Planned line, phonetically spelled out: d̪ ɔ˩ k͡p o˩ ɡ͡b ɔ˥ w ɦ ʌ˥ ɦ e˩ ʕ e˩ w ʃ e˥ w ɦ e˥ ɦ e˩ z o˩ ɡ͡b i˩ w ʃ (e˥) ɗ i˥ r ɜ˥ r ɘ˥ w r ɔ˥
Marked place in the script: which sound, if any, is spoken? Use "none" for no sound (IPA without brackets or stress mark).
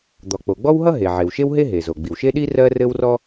e˥